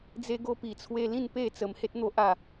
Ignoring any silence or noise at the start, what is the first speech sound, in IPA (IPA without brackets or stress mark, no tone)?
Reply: d͡z